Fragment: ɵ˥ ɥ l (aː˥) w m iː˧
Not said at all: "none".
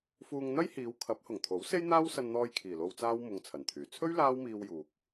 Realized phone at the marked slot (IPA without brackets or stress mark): aː˥